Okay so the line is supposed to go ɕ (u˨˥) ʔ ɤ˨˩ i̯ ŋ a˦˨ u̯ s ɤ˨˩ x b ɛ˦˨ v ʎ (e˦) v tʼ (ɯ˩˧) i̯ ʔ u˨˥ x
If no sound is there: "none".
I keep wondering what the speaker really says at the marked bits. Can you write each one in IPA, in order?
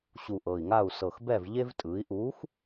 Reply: u˨˩, e˦, ɯ˩˧

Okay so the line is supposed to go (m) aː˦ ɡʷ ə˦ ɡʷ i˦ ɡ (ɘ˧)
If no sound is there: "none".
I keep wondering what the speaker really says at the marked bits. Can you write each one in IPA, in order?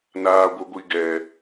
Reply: n, ɛ˧

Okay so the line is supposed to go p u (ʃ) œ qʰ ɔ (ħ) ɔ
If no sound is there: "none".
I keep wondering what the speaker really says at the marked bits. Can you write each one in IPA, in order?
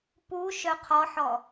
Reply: ʃ, ħ

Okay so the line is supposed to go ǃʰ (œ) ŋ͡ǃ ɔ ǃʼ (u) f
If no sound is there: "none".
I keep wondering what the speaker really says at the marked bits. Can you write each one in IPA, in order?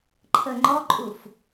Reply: ə, u

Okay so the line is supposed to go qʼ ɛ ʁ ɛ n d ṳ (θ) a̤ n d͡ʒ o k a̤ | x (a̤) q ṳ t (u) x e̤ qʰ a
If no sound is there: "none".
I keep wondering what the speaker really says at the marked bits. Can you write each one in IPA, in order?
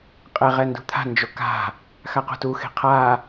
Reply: t̪ʰ, a, u

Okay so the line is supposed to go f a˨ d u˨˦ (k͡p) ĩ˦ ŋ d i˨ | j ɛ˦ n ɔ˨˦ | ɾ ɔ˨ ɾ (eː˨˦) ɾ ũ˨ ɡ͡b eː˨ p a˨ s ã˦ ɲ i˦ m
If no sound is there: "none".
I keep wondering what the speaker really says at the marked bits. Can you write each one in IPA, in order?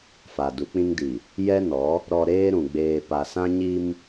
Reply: k͡p, eː˦

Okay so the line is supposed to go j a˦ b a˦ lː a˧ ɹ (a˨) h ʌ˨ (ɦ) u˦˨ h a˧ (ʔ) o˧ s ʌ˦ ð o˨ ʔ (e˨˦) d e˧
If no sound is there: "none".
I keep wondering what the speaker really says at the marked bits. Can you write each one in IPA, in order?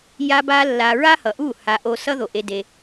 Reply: a˦, ʔ, ʔ, e˧

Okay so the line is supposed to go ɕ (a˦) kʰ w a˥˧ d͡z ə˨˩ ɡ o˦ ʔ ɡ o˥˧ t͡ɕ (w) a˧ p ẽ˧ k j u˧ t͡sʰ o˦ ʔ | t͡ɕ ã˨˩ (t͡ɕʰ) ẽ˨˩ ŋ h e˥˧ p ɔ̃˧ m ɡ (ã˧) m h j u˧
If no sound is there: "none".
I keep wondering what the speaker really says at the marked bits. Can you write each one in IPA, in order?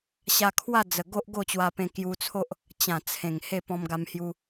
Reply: a˧, w, t͡sʰ, a˧

